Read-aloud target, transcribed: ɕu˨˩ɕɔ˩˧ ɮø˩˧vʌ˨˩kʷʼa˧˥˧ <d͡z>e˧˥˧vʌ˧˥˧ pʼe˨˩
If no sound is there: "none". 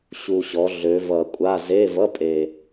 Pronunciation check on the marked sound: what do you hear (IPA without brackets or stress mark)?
z